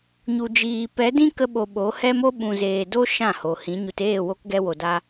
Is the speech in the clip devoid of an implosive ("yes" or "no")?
no